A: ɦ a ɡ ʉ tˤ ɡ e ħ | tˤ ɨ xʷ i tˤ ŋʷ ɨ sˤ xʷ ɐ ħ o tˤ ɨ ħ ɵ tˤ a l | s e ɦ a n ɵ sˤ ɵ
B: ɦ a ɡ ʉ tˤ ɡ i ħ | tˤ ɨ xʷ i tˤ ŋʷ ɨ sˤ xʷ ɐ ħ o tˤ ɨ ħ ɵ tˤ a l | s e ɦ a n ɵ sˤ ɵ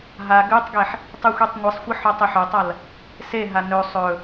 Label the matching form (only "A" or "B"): A